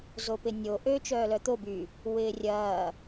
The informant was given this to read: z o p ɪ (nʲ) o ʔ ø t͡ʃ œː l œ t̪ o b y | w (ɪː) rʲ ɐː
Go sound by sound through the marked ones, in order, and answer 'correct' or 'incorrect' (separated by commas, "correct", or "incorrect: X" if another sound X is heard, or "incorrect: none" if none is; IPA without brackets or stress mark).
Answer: correct, correct